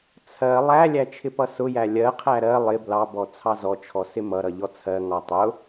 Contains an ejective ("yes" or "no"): no